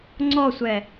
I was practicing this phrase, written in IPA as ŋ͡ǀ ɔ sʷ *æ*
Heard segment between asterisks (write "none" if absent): ɛ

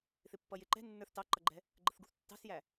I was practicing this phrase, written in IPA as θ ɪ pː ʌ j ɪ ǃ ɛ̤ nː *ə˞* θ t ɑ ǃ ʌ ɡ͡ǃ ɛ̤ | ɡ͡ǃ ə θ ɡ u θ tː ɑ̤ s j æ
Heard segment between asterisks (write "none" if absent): ə˞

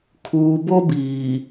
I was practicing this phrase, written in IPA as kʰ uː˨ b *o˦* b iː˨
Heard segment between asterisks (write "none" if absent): o˦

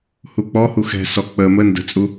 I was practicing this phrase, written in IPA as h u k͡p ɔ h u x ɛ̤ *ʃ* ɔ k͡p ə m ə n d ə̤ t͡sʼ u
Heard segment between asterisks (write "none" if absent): s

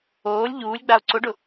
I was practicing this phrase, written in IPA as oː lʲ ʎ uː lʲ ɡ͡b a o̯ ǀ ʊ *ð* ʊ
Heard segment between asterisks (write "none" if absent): ɖ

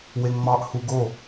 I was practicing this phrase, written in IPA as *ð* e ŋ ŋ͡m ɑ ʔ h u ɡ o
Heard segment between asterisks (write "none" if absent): w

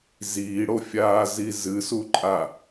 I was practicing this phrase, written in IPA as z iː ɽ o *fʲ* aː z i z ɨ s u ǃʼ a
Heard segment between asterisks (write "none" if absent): fʲ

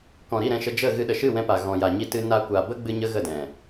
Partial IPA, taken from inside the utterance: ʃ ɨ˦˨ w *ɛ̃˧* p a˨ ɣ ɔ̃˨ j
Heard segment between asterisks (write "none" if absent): ɛ̃˧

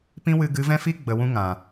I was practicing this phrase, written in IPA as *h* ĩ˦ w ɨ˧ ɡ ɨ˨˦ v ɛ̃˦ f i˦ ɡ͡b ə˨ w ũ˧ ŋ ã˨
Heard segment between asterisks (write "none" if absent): p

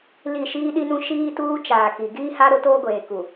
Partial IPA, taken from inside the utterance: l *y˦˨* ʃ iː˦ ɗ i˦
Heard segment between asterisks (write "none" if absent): i˦˨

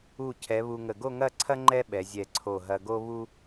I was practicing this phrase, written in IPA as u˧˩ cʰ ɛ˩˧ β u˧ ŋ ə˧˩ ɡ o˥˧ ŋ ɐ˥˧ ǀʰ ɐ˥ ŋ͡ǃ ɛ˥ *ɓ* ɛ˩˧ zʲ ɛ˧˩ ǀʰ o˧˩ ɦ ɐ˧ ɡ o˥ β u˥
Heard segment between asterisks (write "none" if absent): ɓ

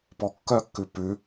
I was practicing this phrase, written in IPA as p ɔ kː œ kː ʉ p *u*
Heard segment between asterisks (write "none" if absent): ʉ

